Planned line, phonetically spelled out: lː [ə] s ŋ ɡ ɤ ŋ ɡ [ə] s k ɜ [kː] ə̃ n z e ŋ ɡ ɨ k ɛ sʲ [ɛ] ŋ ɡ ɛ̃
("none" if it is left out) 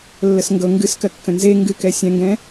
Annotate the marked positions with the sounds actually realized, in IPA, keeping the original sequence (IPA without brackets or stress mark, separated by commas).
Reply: ə, ɨ, kː, ɛ̃